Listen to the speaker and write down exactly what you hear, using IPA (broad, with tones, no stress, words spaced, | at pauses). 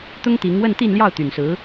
t̪ʊ˥ŋt̪i˧˥ŋ wə˥˧nt̪i˥˧nljɑ˥˩ʊ̯ t̪y˨˩nsɹ̩˧˥